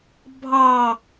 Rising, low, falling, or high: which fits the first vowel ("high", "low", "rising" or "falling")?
low